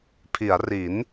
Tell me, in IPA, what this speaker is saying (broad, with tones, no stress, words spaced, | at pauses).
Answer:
pʰi˩˦a̯ri˩˦n